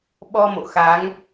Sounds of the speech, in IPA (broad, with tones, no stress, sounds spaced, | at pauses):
ɓ ɔ˧ m o̰˧˨ x a˨˦ ŋ